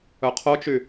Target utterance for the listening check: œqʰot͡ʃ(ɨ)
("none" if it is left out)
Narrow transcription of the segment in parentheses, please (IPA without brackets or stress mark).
y